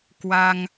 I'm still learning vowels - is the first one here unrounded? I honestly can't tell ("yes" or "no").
yes